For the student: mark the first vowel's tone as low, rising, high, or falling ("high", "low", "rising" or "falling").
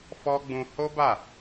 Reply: high